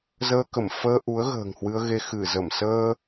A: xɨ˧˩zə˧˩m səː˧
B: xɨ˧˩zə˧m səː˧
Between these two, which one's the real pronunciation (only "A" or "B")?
A